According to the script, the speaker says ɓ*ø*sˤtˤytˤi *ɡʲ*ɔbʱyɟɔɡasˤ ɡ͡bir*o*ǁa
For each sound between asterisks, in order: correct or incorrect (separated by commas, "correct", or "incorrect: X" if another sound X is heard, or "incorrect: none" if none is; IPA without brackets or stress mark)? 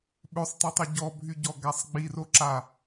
correct, incorrect: ɟ, correct